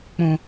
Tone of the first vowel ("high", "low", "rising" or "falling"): low